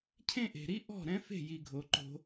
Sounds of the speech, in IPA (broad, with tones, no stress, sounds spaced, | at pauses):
cʰ ẽ˦ ʔ e̤˨ ɾ i˦ ʔ ɔ̤˦˨ ɾ ɛ̃˦ f e̤˦˨ j i˨ ɡʱ o˨ ǃ o̤˧